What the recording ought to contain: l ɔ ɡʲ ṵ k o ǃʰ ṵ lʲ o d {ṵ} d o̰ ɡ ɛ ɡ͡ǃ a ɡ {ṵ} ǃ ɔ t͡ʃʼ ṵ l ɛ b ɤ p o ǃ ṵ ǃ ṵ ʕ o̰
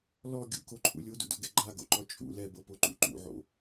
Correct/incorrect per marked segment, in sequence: correct, incorrect

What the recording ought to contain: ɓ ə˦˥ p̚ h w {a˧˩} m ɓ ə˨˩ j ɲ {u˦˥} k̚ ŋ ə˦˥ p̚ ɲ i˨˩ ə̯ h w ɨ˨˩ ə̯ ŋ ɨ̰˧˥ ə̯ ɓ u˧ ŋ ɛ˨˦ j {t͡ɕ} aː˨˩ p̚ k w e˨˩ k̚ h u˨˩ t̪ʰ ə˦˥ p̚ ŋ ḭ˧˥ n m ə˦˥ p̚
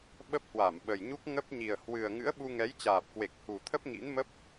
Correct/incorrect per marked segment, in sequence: correct, correct, correct

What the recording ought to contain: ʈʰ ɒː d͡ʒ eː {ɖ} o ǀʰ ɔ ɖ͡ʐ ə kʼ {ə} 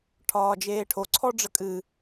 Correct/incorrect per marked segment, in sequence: incorrect, incorrect

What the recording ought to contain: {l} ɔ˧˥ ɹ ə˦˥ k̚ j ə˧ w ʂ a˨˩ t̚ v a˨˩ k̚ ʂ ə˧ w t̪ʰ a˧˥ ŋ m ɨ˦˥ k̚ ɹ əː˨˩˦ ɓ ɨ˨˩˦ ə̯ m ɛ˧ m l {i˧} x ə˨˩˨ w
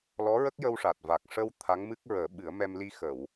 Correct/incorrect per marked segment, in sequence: correct, correct

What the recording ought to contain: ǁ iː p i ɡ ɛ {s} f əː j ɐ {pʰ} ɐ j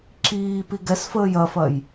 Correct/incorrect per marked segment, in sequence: correct, incorrect

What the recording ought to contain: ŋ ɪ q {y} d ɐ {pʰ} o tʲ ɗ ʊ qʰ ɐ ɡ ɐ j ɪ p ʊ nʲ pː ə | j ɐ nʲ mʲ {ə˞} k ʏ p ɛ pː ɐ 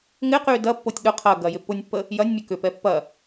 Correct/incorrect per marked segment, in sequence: correct, incorrect, incorrect

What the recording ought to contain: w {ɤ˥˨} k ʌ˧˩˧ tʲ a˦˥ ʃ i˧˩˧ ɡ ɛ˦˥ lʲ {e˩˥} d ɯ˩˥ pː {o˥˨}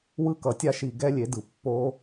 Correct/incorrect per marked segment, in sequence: incorrect, correct, incorrect

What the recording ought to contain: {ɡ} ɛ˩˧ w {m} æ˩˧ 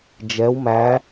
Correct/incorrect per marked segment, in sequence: incorrect, correct

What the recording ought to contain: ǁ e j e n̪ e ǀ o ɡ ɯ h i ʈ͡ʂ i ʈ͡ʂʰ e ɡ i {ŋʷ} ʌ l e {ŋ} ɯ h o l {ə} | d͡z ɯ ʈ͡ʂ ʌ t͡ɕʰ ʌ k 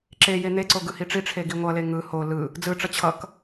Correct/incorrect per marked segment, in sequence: correct, correct, incorrect

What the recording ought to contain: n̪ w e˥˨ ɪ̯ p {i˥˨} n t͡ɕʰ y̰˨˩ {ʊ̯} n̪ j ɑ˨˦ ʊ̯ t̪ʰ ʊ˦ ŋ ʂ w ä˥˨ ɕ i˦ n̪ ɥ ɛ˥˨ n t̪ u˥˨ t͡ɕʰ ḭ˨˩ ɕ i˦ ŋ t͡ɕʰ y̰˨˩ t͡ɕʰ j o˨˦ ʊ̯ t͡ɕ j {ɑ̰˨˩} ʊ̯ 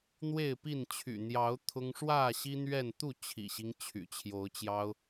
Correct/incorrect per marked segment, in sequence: correct, incorrect, incorrect

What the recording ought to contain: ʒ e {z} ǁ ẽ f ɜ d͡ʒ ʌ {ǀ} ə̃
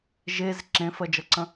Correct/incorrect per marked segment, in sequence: correct, correct

